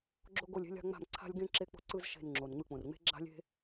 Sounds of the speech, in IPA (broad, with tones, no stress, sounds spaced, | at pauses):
ɡ͡ǁ o˥ ɡ o˥˨ lʲ e̤˥ lʲ a̤˥ ŋ͡m a̤˥˨ m ǀʰ a̤˥ lʲ ɡ ẽ˥ ǁ e˥ k͡p o̤˥ ǀ ɯ˥ z ʃ e̤˥˨ n ŋ͡ǁ o˩ n ŋ͡m ɯ˥˨ k͡p õ˩ r ŋ͡m e̤˥ ɡ͡ǁ a̤˥ lʲ e̤˥